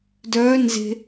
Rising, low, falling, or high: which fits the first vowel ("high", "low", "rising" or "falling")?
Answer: rising